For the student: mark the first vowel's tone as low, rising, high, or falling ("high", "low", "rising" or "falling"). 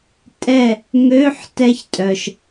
falling